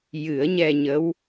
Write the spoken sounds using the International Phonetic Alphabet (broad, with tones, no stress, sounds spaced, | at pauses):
j ɨ˨˩˦ ə̯ ɲ ɛ˧ ɲ ə˧˥ w